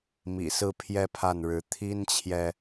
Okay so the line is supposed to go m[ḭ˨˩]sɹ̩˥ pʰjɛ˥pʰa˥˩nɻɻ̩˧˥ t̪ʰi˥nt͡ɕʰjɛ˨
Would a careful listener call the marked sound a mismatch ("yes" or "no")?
no